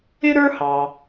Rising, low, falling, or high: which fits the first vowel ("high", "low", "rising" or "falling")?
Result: high